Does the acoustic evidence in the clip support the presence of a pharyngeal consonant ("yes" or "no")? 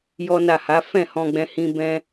no